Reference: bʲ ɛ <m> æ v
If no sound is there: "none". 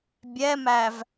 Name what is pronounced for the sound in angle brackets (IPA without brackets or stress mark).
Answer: m